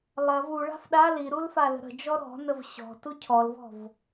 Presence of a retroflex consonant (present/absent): present